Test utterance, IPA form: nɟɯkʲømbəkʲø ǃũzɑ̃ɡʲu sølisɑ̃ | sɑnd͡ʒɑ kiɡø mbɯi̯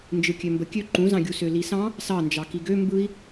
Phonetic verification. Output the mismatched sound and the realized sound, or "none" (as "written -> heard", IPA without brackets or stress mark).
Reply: ɟ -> d͡ʒ